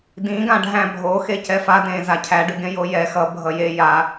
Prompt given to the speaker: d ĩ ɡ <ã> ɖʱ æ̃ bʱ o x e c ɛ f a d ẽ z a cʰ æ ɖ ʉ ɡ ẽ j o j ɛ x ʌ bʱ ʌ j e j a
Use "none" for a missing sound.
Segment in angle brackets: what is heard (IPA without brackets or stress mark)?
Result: ã